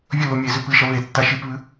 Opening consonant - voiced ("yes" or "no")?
yes